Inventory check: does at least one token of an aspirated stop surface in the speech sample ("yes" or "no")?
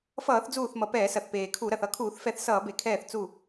yes